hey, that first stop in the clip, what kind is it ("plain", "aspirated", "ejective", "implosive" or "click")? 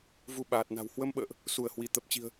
implosive